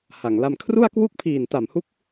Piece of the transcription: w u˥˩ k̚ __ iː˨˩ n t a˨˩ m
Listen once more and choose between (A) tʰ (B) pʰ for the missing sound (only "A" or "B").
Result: B